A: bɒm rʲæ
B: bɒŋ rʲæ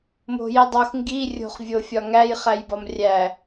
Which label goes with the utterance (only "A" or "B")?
A